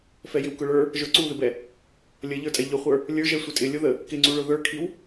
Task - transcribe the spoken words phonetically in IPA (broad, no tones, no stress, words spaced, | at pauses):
fɛjɪwkʊɭə˞ | ʒə˞ǀuðɪbɛ | lʲəʎə˞tʼɛ ʎʊχʷə˞ | lʲə˞ʒɛ sʷɪtʼɪ lʲʊðə | kɪŋ͡ǀuɭʊ ðə˞kʰiw